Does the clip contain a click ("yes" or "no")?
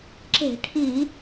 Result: yes